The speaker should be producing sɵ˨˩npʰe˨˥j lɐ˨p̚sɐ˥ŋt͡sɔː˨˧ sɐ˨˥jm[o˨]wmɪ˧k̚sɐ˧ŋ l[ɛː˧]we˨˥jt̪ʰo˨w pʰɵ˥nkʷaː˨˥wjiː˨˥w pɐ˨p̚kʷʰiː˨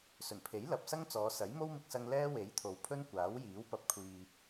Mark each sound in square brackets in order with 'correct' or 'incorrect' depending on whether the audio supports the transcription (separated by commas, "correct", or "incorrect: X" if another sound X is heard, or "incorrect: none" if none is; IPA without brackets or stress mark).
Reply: incorrect: o˥, incorrect: ɛː˥